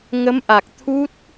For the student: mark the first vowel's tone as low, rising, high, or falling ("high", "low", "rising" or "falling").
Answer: rising